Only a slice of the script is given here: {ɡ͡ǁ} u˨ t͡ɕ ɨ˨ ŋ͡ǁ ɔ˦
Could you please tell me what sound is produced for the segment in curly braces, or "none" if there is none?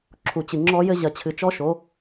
ǁʰ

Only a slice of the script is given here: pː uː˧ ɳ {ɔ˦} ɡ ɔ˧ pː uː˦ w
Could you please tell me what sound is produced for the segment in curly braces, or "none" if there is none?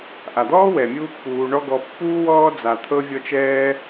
ɔ˦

